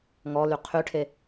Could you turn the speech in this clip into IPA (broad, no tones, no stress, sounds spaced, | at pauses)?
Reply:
ŋ ɔ l y qʰ y ʈʰ e